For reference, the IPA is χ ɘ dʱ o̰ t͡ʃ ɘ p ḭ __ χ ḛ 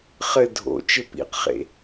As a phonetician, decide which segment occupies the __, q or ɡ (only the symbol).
q